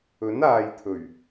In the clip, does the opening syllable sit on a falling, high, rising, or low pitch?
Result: rising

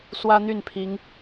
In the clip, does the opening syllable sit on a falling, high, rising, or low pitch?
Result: high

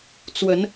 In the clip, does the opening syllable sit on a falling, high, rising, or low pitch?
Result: rising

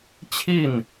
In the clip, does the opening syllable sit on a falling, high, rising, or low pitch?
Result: falling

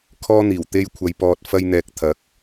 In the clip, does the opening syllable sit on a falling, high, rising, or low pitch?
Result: high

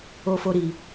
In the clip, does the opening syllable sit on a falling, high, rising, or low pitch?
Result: high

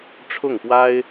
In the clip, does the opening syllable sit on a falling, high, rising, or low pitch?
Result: falling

